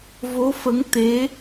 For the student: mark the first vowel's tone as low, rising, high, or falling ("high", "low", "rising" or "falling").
rising